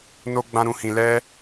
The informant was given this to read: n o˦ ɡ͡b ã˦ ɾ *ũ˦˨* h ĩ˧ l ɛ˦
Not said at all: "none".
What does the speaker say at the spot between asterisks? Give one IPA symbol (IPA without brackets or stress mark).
ũ˦